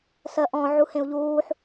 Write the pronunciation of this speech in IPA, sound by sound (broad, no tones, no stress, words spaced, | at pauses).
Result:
sɜʔɔ̃ ʕuhẽu̯ʎuːħ